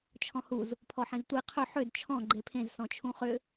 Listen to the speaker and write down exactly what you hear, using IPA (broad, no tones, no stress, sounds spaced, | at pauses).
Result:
t͡ʃʰ ɔ̃ h u z | pʰ ɔ ħ ẽ z tʷ e qʰ ɵ ħ ʏ d t͡ʃʰ ɔ̃ ɡ͡ǃ e pʰ ẽ z s ɔ̃ t͡ʃʰ ũ χ ʏ